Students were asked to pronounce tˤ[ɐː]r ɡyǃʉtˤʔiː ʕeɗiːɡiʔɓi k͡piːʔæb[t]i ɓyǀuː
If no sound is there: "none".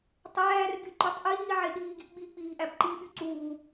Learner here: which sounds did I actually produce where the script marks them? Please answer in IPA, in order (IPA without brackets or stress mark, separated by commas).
æː, ǃ